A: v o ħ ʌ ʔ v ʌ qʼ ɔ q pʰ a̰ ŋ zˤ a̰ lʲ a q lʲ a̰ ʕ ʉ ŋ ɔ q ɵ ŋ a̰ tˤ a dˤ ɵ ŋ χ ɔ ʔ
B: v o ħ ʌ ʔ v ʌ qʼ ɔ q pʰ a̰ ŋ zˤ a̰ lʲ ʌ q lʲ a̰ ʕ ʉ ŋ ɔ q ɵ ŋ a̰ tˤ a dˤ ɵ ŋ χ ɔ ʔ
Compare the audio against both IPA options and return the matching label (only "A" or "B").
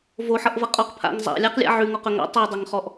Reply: A